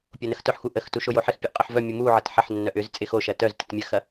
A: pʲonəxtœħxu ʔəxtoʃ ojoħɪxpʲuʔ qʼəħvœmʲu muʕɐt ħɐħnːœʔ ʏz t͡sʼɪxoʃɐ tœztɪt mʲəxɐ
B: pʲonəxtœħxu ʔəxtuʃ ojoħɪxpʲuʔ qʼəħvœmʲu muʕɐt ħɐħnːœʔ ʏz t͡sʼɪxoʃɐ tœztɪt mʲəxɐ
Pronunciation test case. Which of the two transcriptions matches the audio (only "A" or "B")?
B